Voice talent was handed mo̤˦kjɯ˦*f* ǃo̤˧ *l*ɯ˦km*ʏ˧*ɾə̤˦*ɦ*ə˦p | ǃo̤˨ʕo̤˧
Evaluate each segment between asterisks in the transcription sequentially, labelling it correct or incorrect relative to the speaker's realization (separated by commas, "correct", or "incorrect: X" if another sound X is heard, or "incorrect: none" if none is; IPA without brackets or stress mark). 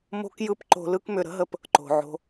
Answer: incorrect: p, correct, correct, correct